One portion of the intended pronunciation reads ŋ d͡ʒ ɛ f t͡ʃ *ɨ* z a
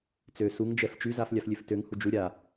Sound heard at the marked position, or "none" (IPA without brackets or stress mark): y